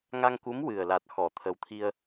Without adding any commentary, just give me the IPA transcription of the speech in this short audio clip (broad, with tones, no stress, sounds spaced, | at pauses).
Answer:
ŋ a˧ ŋ k u˧˥ m w ɨ˨˩ ə̯ l a˨˩ t̚ x ɔ˨˩˨ t̪ʰ ə˨˩ w t̪ʰ i˧ ə̯